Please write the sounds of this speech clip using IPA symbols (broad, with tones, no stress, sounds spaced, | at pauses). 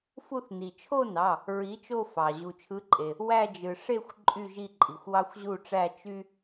f u˥˧ θ n i˩ t͡ʃʰ o˥˧ n ɑ˩˧˩ | ɹ i˨˥ t͡ʃ o˥˧ f ɑ˩ ʑ u˩ t͡ʃʰ ɯ˨˥ ǃʼ e˩ | w æ˥˧ d͡ʒ ɯ˩ ʂ e˥˧ xʷ ǃʼ y˥˧ ʒ i˥˧ ǃʼ i˩ xʷ w ɑ˥ xʷ ʑ u˥˧ ʈ͡ʂ æ˥˧ t͡ʃ y˥